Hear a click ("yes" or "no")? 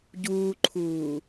yes